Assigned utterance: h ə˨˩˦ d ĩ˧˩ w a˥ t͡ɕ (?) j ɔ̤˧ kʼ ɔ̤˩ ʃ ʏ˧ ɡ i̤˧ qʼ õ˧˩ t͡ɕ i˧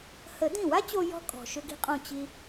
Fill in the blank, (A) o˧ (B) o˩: A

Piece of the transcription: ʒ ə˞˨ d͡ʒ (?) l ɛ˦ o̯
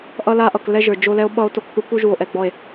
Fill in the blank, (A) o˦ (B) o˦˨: A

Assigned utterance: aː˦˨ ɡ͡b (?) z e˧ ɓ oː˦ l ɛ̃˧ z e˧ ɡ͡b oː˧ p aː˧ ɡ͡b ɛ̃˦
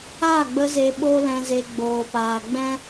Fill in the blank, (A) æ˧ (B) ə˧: B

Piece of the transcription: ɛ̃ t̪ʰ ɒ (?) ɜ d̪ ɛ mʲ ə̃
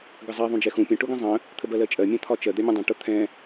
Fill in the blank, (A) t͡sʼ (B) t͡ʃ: B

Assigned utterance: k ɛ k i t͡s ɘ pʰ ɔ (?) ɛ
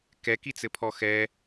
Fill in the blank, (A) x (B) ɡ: A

